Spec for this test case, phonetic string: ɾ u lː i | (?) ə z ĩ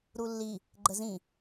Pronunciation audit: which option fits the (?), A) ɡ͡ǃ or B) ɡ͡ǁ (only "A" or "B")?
A